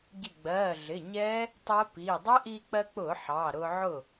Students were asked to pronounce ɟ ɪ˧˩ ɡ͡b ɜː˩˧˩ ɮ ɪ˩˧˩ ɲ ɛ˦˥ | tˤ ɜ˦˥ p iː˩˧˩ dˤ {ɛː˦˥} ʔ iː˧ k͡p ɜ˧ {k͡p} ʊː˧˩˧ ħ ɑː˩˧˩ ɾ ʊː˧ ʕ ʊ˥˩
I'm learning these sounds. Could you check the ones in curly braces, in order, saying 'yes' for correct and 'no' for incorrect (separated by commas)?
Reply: no, yes